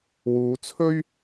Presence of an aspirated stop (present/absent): present